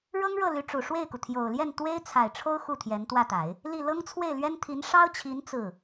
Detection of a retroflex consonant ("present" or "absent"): present